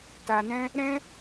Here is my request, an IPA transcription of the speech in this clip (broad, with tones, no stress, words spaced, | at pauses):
ta˨nɛ̃˧ | ɾɛ̃˦